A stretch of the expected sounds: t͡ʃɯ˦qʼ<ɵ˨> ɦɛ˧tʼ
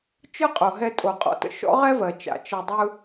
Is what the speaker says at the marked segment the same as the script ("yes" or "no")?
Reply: no